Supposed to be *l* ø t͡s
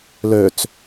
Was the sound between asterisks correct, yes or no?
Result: yes